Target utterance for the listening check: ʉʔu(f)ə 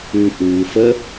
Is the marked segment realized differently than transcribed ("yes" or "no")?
no